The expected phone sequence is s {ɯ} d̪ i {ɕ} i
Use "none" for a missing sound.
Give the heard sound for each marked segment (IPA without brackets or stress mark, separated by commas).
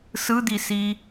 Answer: ɯ, s